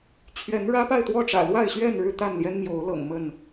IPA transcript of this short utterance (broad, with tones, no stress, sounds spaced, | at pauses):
t͡ɕʰ ɥ ɛ˨˦ n ɻ ä˦ p a˥˨ ɪ̯ t̪ w ɔ˥˨ ʈ͡ʂ ä̰˨˩ l w a˥˨ ɪ̯ ɕ ɥ ɛ˥˨ n ɻ ɻ̩˥˨ t̪ a˥˨ n l j ɛ˦ n m j o˨˦ ʊ̯ l ɤ̰˨˩ ŋ m ə˥˨ n